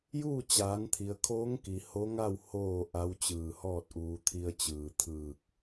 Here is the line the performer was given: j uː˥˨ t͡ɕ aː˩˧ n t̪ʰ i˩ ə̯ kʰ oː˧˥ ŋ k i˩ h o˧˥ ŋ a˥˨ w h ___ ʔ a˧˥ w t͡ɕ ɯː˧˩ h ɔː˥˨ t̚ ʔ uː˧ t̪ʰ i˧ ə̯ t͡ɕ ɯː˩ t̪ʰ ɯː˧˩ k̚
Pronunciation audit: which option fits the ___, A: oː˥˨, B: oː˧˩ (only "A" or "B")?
A